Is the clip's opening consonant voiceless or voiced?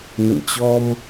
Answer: voiced